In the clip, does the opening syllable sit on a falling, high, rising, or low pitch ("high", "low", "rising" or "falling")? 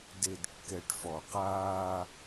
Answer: low